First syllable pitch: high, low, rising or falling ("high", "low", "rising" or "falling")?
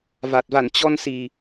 low